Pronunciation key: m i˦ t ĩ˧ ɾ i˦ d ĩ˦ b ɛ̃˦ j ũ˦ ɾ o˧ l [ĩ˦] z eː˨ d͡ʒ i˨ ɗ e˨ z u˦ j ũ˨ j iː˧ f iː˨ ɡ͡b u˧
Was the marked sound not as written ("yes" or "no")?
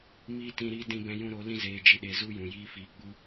no